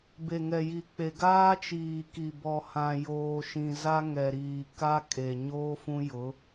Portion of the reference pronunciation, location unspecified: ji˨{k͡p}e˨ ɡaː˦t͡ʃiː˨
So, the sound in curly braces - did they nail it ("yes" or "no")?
yes